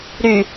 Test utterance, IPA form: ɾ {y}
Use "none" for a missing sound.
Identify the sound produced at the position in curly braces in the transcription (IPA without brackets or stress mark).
y